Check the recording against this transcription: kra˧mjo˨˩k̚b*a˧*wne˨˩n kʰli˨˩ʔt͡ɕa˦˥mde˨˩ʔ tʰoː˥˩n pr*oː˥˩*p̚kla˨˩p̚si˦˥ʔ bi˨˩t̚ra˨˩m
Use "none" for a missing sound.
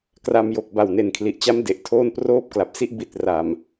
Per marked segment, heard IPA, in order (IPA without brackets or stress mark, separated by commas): a˨˩, oː˥˩